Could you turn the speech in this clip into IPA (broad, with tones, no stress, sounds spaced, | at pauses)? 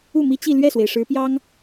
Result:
u˥˩ m i˥ t͡ɕ i˥˧ l ɥ ɛ˥˩ s w e˩ ɪ̯ ʂ ɻ̩˧˥ p j ɑ˥ ŋ